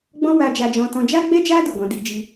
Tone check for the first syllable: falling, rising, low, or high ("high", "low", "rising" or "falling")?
high